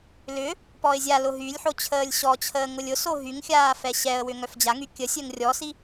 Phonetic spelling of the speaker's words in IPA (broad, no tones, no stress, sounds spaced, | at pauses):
l ʏ | p ɔ ɪ̯ zʲ a l ʊ ɦ y lʲ ħ o t͡ɕʰ əː lʲ ɕ ɔ t͡ɕʰ əː ŋ ʊ lʲ ʊ s o ɦ y ŋ xʲ aː f ɛ ɕ ɛ ə̯ w ʏ ŋ œ f d͡ʑ a ŋ y kʲ ə sʲ œ ŋ rʲ ɔ s i